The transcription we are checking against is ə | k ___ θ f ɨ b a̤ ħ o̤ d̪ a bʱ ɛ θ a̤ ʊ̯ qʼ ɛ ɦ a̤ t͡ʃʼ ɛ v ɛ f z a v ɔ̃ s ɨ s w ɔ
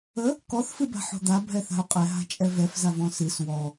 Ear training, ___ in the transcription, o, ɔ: ɔ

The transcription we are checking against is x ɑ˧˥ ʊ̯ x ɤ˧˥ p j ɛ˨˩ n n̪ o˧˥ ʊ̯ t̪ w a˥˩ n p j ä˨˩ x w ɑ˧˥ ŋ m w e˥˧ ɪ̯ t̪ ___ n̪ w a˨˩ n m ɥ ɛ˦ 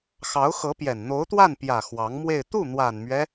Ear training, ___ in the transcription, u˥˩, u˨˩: u˥˩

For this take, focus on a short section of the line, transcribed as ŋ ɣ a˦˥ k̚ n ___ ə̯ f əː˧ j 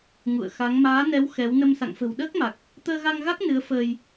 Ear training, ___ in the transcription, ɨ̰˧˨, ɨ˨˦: ɨ˨˦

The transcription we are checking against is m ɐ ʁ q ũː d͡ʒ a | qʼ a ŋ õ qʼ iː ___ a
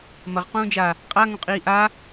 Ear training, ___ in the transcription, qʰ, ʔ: ʔ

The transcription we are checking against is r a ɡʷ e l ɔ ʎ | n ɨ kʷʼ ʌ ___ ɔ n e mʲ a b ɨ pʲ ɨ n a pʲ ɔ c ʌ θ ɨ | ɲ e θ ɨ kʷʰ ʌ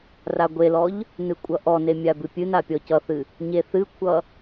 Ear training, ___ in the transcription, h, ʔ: ʔ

